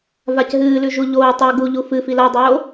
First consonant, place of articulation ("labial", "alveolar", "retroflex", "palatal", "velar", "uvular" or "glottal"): labial